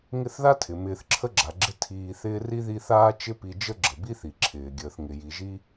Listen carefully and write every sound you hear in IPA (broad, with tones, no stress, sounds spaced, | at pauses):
ŋ ɪ˦ θ ð a˥ tʰ ɪ˩ m ɪː˨ θ ǁʰ ə˥ ɡ͡ǁ a˩ ɡ͡ǁ ɪ˦ tʰ iː˨ θ ɪː˦ r i˥ ð i˦ θ aː˥ t͡ʃ ɪ˦ p i˨ d͡ʒ ə˥ ɡ͡ǁ ə˩ b i˥ θ i˩ ǁʰ ɪː˩ ɡʲ əː˩ θ ŋ ɪ˩ j i˩ ʒ i˥